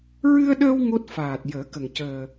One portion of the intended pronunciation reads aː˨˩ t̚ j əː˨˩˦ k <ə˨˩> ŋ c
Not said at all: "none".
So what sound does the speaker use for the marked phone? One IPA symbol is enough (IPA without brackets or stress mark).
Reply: ə˨˩